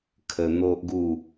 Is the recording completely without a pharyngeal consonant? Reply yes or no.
yes